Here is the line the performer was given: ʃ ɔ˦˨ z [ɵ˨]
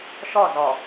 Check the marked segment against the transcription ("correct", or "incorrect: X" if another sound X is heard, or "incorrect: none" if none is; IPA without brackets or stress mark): incorrect: ɔ˨